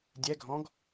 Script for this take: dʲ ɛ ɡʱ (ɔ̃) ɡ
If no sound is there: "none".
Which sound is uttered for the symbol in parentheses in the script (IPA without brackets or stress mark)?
ɔ̃